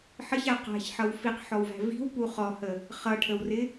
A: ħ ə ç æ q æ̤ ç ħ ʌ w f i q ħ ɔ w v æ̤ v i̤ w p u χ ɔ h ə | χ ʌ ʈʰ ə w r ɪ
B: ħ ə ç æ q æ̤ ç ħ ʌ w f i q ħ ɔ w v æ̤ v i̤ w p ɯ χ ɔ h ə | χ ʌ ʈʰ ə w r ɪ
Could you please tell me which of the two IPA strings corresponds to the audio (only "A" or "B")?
A